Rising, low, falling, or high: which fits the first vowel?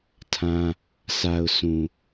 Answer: high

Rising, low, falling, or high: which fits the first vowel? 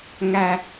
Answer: low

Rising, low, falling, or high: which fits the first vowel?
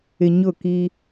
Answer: low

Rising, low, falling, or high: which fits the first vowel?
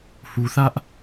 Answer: low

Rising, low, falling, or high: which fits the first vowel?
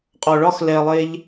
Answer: low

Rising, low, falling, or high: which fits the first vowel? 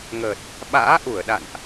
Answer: low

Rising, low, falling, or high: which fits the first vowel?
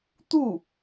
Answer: falling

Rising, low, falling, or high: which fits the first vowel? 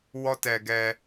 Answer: high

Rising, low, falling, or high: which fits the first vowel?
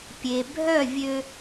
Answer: low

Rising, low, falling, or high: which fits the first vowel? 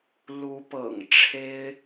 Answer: rising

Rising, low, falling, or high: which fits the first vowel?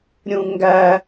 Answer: high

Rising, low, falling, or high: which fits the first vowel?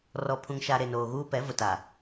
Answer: low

